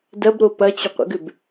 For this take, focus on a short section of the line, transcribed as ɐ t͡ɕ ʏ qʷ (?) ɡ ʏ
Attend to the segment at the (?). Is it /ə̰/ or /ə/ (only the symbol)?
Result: ə̰